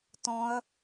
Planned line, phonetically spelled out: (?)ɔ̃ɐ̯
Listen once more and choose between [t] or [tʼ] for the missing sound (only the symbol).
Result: t